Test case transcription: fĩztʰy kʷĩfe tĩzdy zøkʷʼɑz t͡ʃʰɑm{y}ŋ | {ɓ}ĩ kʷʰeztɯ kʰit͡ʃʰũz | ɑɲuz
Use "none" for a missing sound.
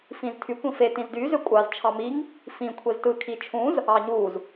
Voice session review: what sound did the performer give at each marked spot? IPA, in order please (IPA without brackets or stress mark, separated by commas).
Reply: i, f